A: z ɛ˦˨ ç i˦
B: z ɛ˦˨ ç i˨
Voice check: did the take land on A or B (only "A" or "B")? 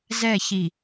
B